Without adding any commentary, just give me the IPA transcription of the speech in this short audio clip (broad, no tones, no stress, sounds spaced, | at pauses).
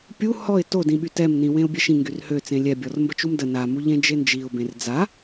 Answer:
pʲ u h ɔ ɪ̯ t o d ĩ ɓ y t ɛ m n ĩ w ẽ ʊ̯ bʲ ɛ ʃ ĩ ŋ ɡ y r h ø t͡s ẽ lʲ ɛ bʲ ɔ r m b ə t͡ʃ u m d ə n a m u ʎ ẽ d͡ʒ e n d͡ʒ i ʊ̯ b ẽ r d͡z a